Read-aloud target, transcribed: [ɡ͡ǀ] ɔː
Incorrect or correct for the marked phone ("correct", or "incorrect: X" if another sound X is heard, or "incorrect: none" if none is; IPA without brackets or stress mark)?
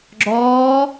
incorrect: ɡ͡ǁ